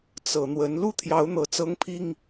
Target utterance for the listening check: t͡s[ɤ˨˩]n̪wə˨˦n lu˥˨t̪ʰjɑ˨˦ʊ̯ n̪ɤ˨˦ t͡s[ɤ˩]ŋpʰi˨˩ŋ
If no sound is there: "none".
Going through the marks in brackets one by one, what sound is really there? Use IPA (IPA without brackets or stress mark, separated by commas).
ɤ˨˩, ɤ˨˦